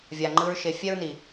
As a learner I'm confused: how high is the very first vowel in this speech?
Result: low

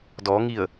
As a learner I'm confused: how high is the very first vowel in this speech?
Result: mid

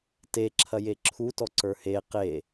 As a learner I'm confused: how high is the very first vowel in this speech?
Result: mid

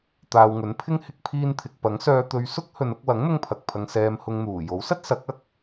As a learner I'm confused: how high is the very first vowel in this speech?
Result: low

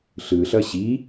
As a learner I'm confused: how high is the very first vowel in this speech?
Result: high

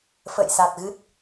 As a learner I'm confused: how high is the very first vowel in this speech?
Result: mid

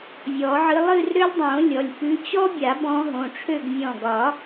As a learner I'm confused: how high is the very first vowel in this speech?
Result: mid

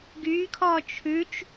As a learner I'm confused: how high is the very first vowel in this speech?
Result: high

